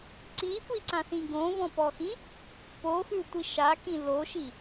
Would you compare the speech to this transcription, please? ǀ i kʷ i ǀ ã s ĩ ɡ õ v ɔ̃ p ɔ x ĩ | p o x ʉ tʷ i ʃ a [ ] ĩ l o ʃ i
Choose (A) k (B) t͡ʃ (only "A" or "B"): A